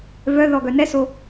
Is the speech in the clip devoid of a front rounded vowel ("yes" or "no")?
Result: no